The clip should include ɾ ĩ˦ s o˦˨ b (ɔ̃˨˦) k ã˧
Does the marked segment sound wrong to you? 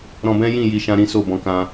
no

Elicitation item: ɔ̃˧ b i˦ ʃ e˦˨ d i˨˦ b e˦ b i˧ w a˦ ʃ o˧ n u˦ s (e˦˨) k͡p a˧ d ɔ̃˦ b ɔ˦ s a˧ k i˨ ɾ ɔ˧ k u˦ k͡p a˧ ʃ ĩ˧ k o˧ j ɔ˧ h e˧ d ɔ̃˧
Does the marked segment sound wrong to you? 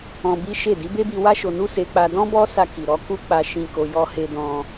yes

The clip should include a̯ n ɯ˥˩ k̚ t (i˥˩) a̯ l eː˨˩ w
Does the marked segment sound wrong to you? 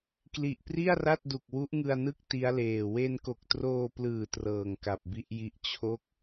yes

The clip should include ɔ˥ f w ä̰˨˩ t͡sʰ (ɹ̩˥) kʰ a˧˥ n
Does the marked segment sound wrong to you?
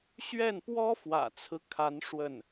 yes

